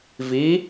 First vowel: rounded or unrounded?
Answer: unrounded